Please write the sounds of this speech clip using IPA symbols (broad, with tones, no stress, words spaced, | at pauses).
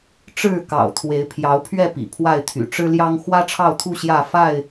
ʈ͡ʂɻ̩˥˨kɑ̰˨˩ʊ̯ t̪ʰwe˨˦ɪ̯pʰjɑ˨˦ʊ̯pʰɥɛ˥˨ pḭ˨˩pʰwa˥˨ɪ̯t̪ʰy̰˨˩ ʈ͡ʂɻ̩˦ljɑ˦ŋ xwä˦ʈ͡ʂʰɑ˥˨ʊ̯t̪ʰu˥˨ ɕjä˥˨fa˥˨ɪ̯